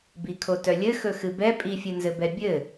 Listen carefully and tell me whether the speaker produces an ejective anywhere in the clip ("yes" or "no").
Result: yes